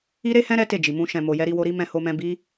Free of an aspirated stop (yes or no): yes